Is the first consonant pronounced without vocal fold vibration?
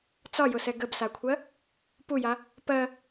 yes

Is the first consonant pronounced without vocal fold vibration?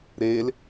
no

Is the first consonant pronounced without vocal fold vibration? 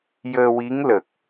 no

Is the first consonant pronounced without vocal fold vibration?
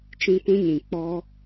yes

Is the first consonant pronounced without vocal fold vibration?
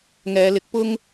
no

